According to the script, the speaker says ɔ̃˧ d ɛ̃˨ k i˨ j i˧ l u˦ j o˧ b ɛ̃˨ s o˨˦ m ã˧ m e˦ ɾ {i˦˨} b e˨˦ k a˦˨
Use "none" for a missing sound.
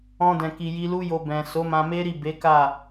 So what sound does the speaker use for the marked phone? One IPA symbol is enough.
i˦˨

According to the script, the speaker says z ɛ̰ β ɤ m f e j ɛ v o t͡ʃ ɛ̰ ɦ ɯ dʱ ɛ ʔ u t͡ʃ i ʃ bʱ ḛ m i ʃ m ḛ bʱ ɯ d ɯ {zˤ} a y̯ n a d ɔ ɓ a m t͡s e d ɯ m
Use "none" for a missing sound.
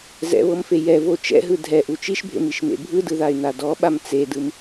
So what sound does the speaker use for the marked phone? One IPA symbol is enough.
ð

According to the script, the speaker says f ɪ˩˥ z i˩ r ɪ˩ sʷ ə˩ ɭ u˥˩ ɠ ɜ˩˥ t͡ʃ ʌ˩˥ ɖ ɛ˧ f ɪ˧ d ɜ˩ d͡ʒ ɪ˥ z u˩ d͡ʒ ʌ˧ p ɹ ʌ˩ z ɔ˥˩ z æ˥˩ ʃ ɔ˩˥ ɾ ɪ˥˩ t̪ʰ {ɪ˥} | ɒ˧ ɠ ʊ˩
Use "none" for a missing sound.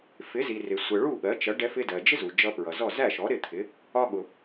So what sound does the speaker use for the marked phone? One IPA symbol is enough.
ɪ˩˥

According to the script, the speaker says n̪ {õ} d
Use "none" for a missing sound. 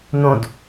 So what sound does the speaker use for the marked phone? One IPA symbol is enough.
õ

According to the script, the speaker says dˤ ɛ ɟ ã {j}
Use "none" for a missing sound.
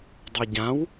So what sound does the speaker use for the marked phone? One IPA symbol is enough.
w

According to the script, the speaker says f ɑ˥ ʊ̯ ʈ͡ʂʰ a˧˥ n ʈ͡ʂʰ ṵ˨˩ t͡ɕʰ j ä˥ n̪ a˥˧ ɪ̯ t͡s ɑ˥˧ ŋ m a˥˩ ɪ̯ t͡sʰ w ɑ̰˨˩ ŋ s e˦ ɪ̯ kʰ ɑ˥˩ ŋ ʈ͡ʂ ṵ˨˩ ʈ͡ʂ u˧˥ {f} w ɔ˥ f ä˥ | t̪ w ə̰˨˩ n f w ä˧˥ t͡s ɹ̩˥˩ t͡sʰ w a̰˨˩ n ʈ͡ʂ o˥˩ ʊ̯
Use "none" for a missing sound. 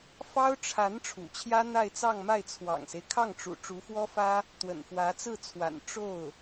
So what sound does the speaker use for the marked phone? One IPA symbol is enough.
f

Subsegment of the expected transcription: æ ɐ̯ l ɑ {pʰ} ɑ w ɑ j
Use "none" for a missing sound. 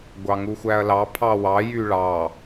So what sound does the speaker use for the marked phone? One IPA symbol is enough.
pʰ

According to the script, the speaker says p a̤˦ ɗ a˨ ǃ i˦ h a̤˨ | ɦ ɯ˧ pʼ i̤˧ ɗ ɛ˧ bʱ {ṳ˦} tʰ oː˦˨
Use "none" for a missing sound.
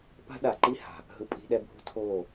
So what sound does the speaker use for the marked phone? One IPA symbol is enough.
ṳ˦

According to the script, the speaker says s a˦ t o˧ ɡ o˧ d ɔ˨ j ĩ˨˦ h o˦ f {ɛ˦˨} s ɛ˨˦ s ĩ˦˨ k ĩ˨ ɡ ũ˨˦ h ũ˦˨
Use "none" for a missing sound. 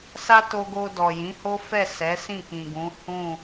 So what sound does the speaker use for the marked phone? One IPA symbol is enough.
ɛ˦˨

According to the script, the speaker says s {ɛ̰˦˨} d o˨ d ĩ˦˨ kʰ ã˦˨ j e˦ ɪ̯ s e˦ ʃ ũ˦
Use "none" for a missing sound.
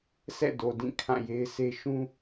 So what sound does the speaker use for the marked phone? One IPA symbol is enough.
ɛ̰˦˨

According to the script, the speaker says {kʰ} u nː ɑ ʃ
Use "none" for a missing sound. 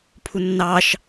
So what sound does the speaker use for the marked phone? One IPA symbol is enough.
pʰ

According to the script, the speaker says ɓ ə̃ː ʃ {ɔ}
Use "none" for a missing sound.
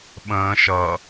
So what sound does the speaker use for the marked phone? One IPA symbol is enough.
ʌ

